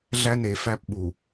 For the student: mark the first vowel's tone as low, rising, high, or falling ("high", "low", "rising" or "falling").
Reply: high